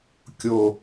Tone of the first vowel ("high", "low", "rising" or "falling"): low